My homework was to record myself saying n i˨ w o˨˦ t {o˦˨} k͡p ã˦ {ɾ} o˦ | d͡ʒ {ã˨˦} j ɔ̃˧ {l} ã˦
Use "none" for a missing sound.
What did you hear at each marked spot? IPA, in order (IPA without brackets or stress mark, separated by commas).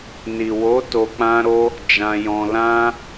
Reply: o˧, ɾ, ã˧, l